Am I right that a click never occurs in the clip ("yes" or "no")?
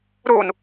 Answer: yes